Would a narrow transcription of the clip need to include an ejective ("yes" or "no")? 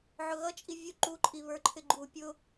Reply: yes